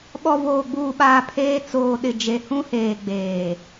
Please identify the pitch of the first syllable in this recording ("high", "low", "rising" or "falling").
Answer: low